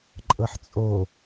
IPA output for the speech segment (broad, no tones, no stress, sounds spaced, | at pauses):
ǃʼ ɤ ħ t͡sʼ o